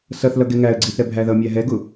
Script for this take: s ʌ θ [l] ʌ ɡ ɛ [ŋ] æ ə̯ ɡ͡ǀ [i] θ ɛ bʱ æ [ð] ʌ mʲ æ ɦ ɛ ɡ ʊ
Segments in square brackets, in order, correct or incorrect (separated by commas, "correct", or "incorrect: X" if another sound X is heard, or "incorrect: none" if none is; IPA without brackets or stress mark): correct, correct, correct, correct